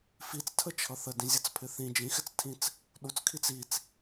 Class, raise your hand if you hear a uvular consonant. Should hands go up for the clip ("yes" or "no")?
no